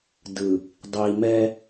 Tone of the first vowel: low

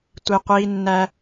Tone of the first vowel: low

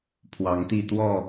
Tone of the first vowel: rising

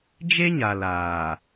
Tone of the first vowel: high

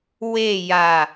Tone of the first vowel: falling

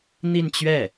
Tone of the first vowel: falling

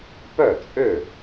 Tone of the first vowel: falling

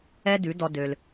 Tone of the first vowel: high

